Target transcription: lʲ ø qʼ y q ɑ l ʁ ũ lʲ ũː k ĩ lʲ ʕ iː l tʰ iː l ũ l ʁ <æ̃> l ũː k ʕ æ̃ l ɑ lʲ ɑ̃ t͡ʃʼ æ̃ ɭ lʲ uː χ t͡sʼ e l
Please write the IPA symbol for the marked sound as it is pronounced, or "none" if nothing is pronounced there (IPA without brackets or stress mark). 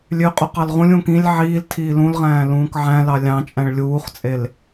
æ̃ː